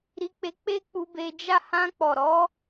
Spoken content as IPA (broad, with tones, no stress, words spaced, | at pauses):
ɾi˧k͡pe˧ k͡pe˦k͡pu˧be˧ d͡ʒa˦ hã˧k͡pɔ˨ɾɔ˨˦